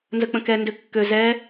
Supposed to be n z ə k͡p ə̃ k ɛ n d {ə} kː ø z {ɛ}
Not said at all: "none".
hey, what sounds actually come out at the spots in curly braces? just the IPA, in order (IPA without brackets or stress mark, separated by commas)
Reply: ø, ɛ